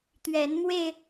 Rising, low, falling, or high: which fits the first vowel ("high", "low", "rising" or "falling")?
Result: rising